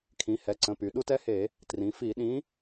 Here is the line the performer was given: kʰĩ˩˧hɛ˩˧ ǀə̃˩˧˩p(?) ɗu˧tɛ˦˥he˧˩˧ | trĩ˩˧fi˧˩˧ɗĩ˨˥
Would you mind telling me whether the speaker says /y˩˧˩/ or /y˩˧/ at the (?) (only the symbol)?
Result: y˩˧